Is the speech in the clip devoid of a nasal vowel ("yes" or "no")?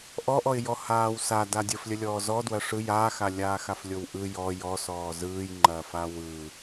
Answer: yes